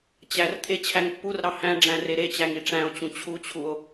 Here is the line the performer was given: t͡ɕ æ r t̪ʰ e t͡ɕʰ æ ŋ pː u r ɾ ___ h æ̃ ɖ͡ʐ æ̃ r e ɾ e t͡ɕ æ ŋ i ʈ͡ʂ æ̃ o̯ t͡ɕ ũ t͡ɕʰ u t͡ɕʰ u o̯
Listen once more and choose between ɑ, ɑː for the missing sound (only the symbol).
ɑ